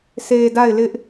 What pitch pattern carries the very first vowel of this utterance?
low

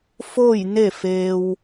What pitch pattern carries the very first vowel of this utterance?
falling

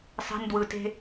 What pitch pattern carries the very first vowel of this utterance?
high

